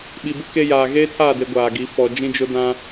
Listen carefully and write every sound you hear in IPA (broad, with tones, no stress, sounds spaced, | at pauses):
ɓ i˨ b ɪ˦ k e˦ j aː˨ ɣ eː˦ tʰ aː˦˨ d e˨ ɡʷ aː˨ ɡ i˨˦ f ɔ˨ d͡ʒ ĩ˦ d͡ʒ ʊ˦ d ã˦